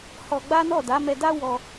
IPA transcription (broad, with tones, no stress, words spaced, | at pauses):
hɔ˧ɡ͡ba˦nɔ˦˨ da˨˦mɛ˧ da˦wɔ˧